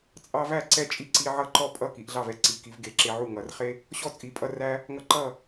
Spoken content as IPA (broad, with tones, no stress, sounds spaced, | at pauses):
t͡sʼ ɑ˦ v æ˥˨ ǀ ɛ˥˨ t͡ʃʼ i˥˨ ǀ i˦ ʕ ʌ˥˨ ǃ ɔ˥˨ pʼ ʌ˥˨ k i˨˦ ʔ ɮ ɑ˥˨ v ɛ˥˨ ǀ i˨˦ k i˨˦ v ɡ e˨˦ ǁ e˦ ʕ u˥˨ ŋ ʌ˨˦ r χ e˦ | ɕ ɔ˥˨ t͡sʼ i˨˦ pʼ ʌ˦ r æ˦ | ŋ ʌ˦ ǃ ʌ˥˨